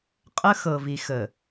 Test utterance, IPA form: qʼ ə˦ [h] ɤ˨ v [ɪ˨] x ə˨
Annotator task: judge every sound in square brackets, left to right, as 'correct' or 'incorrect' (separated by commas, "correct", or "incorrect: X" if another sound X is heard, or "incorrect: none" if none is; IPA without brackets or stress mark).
incorrect: x, incorrect: i˨